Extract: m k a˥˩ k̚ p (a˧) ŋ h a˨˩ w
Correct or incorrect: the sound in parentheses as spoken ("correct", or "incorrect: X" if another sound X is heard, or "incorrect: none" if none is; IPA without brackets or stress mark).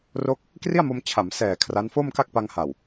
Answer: correct